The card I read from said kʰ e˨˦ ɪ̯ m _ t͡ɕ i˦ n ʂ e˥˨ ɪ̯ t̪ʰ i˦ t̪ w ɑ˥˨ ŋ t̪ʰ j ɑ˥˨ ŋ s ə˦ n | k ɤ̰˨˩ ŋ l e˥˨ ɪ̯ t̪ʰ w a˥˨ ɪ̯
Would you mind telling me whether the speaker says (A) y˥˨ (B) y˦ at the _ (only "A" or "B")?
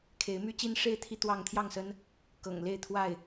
B